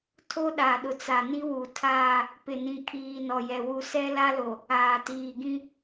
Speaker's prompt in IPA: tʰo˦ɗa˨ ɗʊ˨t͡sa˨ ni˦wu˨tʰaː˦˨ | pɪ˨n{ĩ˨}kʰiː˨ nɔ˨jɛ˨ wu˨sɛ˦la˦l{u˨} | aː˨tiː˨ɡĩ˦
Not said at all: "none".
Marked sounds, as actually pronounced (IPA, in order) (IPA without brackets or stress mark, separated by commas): ĩ˨, o˨